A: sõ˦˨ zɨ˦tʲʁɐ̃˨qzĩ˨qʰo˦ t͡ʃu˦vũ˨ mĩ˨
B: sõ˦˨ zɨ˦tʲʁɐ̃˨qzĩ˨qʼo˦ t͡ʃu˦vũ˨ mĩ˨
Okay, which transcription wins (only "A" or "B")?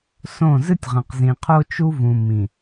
A